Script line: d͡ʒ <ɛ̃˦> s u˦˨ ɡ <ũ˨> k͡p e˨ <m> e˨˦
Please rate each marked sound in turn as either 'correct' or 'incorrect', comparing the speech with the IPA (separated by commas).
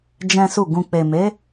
correct, correct, correct